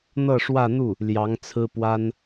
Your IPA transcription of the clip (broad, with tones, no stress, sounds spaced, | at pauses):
n̪ ɤ˥˧ ʂ w ä˥˧ n̪ u˥˩ | l j ɑ˧˥ ŋ t͡sʰ ɹ̩˥ p w a˥ n